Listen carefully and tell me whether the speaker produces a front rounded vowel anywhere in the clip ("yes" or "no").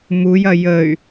yes